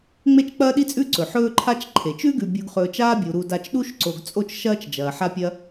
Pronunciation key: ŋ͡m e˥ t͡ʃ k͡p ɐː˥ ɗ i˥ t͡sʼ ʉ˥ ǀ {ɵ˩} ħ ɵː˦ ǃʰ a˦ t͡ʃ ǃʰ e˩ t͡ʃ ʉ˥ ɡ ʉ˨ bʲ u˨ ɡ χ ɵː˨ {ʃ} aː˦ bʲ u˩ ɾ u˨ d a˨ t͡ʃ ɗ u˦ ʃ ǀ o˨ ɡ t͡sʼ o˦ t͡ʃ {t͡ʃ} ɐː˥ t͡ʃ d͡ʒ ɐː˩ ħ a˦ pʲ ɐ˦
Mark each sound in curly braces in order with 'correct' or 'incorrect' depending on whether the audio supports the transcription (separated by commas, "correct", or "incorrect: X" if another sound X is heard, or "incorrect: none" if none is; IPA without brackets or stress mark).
correct, incorrect: t͡ʃ, incorrect: ʃ